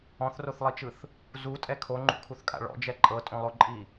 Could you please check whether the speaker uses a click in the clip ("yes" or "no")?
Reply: yes